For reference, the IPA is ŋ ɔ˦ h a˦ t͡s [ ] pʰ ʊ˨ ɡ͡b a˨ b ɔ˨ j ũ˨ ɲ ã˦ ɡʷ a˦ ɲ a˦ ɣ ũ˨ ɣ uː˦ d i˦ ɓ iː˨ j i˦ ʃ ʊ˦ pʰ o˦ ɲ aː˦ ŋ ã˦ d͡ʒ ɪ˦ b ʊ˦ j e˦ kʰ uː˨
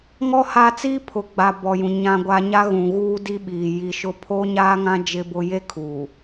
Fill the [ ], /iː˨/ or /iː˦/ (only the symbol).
iː˦